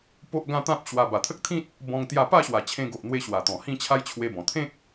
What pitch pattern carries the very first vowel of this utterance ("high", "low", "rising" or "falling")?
high